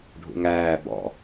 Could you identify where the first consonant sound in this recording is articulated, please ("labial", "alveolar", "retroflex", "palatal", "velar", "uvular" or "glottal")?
retroflex